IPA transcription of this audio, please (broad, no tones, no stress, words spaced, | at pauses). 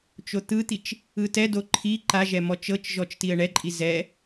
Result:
t͡ʃot̪ɯt̪it͡ʃ | ɯtɛdo ǃʰi ǃaʒɛ mɔt͡ʃɤt͡ʃʒɔt͡ʃ tiə̯ɳɛǃʼi zɛ